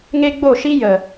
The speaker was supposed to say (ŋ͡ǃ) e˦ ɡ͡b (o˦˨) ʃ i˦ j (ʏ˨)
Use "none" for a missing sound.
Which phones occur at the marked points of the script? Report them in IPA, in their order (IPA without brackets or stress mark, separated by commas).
ŋ, o˦˨, ə˨